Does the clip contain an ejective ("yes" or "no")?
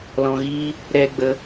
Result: no